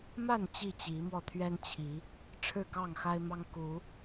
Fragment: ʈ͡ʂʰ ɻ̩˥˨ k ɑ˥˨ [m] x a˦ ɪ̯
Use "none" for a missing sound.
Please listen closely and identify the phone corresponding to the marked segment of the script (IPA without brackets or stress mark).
ŋ